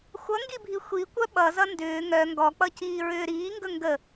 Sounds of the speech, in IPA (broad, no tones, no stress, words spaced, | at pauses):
xʷʌŋɡibʱi xʷikʷœ ɓʌzʌ ndʏː ŋœ ŋɡɔk͡pʌciːɹʏː ɾiːŋɡɵ ŋɡə